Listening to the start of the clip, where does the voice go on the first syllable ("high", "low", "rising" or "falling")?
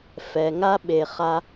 low